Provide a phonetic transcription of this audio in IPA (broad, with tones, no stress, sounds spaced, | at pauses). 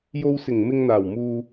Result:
j o˧ w s ɪ˨˩ ŋ m ɪ˧ ŋ n̪ aː˨˩ w m uː˧